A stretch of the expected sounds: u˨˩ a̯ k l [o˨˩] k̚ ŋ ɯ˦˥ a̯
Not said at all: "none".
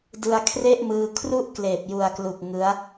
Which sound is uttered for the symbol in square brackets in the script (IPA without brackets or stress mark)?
u˨˩